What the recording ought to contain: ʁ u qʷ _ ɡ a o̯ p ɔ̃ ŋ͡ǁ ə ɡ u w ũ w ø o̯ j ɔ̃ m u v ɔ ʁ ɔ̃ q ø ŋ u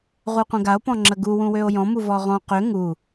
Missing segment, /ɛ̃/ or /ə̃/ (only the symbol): ə̃